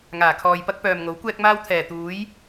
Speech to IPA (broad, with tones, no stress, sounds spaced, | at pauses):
ŋ aː˨˩ kʰ ɔː˨ j p ɐ˥ k̚ p œː˨ m ŋ o˨˥ w kʷ ɛː˥ k̚ m aː˥ w t̪ʰ ɛː˨˩ t̪ uː˨˥ j